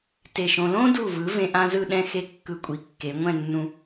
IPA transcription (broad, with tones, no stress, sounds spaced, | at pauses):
t e˧˩ ʃ õ˧ l õ˥ d u˧˩ v ɯ˩˧ v ẽ˧ ʔ ã˥ z ɯ˥˧ ɗ ɛ̃˥ x e˥ kː ɯ˧˩ kʷʼ i˩˧ kː e˩˧ ŋʷ ɛ̃˥˧ nː ũ˧